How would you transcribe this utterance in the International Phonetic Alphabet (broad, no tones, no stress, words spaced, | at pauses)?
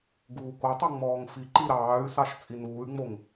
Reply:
ɡuːkotˤo ŋ͡mɔːŋfiǃi ɾɑːy̯sɑʃ t͡sʼinuːy̯ŋ͡moŋ